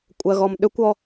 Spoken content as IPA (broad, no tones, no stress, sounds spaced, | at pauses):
kʷʼ ɜ ɣ ɔ m ɗ ʏ kʷ ɔ